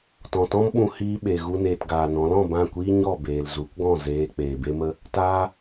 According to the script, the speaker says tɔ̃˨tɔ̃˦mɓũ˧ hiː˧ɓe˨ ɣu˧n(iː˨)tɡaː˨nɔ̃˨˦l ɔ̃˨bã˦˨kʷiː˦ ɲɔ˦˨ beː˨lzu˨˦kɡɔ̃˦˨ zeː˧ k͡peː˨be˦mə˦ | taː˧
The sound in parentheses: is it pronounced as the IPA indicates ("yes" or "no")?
no